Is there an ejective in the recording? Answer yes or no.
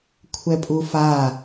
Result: yes